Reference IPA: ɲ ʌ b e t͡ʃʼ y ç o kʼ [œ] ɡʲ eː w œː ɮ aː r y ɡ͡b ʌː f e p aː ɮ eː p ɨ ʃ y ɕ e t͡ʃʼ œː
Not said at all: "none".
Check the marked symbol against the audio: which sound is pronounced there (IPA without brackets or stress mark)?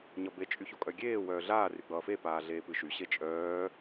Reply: œ